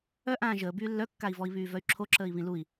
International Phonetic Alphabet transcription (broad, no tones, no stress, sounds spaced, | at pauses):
œ ʔ ãː ʒ əː b yː lː œ kː a i̯ v ɔ i̯ β yː v œ y̯ ǁʰ o ǁ əː i̯ β ĩ l u i̯